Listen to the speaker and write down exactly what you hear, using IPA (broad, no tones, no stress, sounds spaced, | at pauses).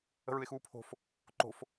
ə̤ ɹ ɯ ɪ̯ x uː pʰ o̤ f | ǃ o̤ f